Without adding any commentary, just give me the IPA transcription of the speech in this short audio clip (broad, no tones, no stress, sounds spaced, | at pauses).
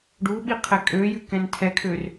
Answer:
ɖ u ɓ i qʰ ɛ kʼ ø j ʉ k ɛ̃ n tʰ ɛ kʰ ø r